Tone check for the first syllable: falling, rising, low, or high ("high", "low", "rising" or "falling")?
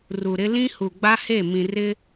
low